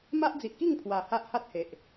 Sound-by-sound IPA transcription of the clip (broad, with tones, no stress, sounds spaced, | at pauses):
m a˦ ʔ d͡z i˨ ʔ k i˥˧ ŋ pʰ w a˨˩ h a˦ ʔ h a˦ t̚ h e˨ ʔ